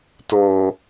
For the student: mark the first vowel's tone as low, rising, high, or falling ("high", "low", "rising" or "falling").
low